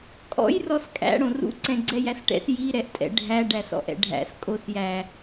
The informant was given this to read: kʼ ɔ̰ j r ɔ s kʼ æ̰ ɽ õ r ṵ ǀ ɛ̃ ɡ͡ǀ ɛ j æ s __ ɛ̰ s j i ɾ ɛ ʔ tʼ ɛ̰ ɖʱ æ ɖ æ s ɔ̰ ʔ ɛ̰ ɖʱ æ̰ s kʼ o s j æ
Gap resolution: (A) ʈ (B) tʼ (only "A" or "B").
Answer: A